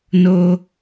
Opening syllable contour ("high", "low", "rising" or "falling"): high